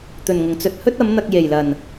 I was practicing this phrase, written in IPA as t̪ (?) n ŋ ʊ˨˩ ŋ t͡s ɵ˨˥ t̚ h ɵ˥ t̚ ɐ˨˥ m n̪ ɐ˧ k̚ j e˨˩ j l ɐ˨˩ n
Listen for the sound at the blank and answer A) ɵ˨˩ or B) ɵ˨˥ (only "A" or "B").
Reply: A